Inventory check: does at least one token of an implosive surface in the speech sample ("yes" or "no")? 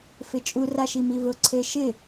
no